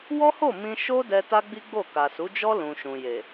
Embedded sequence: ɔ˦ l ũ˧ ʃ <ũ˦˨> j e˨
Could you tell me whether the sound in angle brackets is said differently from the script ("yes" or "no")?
yes